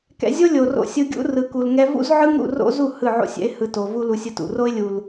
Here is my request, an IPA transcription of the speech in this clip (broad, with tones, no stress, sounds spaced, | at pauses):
k ɛ̰˧ zʲ o˦ lʲ o˨ r o̰˧ sʲ ɯ˧ ɡʲ ṵ˦ r ɯ˨ k u˨ l ŋ ɛ˧ v ṵ˦ z ʕ ɯ˦ ŋ ɾ ṵ˦˨ r o̰˦ z u˦˨ h ɯ˦˨ ʕ o̰˦ sʲ ɛ̰˦ ɪ̯ h ɯ˧ t o˨ v u˦ l u˧ sʲ ɯ˧ t ṵ˨ r o˦ ɪ̯ lʲ u˨ l